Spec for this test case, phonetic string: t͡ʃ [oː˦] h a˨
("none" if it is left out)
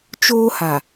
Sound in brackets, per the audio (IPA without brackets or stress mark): oː˦